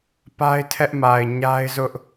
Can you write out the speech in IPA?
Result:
pa˦ɪ̯tʰɛ˦ʔma˨ɪ̯ ɲa˦ɪ̯zʊ˦ʔ

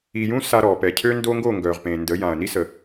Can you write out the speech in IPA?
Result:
i˨jũ˦ sa˦ɾɔ˨ pɛ˨ cʰø˦ndo˦ŋɡo˦˨ ŋɡœ˨ʁpẽ˨ndə˨˦jã˨ɐ̯ ni˦sə˨

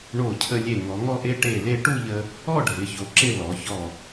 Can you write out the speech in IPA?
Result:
ɳo˧˩cʰə˧lʲe˧˩ ŋɔ˩˧ŋɔ˥˧ʔe˥ ʈe˧˩le˧ ʈu˥˧ʎə˧ | ɔ˥˧ɖʱɪ˩˧ço˩˧ ǁɪ˥˧lɔ˩˧ çɔ˧˩

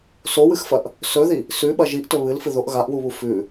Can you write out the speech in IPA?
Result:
sowɨxfɐʔ | sɵði | sʉɓɐ ʒiʔtɵ βɨlfɨ ðoʔ ɣaʔwuβu fʉ

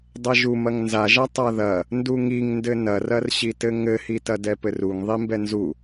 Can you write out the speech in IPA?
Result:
dˤɐʒumɐŋ nzaʒa tˤaðɐ | nduŋiŋndɘ nɐrɐrɕitɘ ŋɘhitɐ dɛpɘruŋ ðˤimbɛnzu

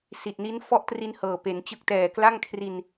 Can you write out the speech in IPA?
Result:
si˨˩t̚ni˦˥n fɔ˥˩ʔtri˧n hɤː˨˩pe˩˦nt͡ɕɯ˦˥k̚ tɛː˨˩ kla˥˩ŋkʰri˧n

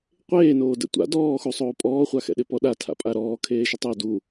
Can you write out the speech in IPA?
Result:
qʷeː noːdɛ̰tʷa̰ dɔːxusˤoː pʼɔːχʷa xɛ̰ɗɪpɔɗa tʰa̰pʼaɾɔː kʰeːʃʊtˤo du

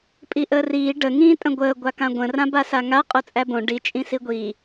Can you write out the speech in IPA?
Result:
pʼiʔəːriː ɖə ŋĩːtʼə̃ɡʷəː ɡʷakãɡʷə̃ rãbasaŋa qʼot͡sʼæbõ ɖi t͡ʃʼĩsiɡʷi

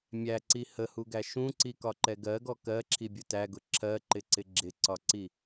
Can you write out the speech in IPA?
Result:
mʲæǀi həhuɡæ ʃũǀikɒǃɛ ɡɜɡɔ kɜǁʰibʲʊ tæɡʊ ǁʰɜǃɪǀɪ ɡ͡ǁɪǀɒǀi

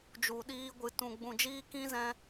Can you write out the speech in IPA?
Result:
d͡ʒu˨ɗiː˧ɡʷɨ˨ tũ˨ɡ͡bũ˨d͡ʒiː˧kĩ˧ zɛ̃˧

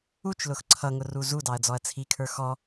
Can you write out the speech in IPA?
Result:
ut͡ʃlʊx ǀʰʌŋʊ ruzudɑɐ̯ d͡zɔɐ̯t͡sʰikʰə˞ xɔ

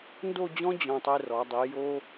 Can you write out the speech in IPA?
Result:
ndo˥˧d͡ʑɔ̃˥ d͡ʑɔ̃˧˩tˤe˥˧rɔ˩˧ dˤi˩˧jo˥

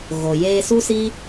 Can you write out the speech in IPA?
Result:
ɣo˨ jeː˧ su˦si˦

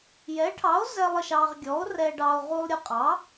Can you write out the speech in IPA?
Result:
jɛ˨˥ʈʰɑ˨˥o̯zɛ˧lˠ ə˧ʃɑ˧ʁ ɡʲɔ˨˥o̯rɛ˧ɖɑ˧o̯ ʁu˧lˠɾʲə˧qʼɑ˨˥

